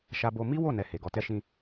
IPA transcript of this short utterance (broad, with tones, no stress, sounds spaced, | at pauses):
ʃ a˧ b o˧ m i˦ w o˦˨ n ɛ˧ h e˨ ɡ ɔ˨ t ɛ˧ ʃ ĩ˧